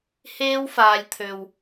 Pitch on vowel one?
high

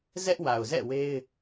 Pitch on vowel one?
high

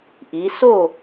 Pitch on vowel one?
rising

